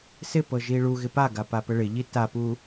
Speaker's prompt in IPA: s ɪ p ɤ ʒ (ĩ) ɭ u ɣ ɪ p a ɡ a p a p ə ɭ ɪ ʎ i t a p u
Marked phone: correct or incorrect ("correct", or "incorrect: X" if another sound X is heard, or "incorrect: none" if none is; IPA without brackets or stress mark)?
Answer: incorrect: i